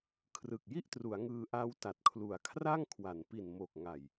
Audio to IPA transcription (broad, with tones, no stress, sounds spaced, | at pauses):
kʰ r ɯ˨˩ k̚ j i˥˩ ʔ t r u˩˦ a̯ ŋ ɯː˧ ʔ a˦˥ w t a˨˩ t̚ kʰ l u˩˦ a̯ kʰ r a˥˩ ŋ kʰ w a˩˦ n p i˨˩ n m oː˨˩ k̚ ŋ a˨˩ j